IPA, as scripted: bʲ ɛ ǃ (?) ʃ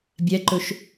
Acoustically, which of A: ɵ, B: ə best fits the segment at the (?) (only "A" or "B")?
A